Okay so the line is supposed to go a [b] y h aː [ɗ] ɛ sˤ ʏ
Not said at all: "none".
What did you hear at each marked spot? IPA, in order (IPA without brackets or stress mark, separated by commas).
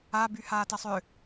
b, t